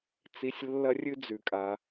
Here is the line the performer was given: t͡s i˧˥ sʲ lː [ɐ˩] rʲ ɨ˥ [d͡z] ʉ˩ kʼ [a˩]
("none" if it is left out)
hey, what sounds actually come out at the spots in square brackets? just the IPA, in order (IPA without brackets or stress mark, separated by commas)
ɐ˥, d͡z, a˩